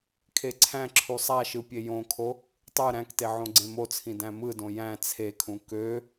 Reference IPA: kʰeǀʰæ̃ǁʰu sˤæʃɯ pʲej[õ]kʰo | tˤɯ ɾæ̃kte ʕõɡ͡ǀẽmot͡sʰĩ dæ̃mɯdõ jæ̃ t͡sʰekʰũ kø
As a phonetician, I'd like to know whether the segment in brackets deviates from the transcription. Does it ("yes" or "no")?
no